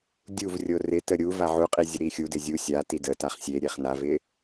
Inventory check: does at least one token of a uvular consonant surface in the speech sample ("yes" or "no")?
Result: yes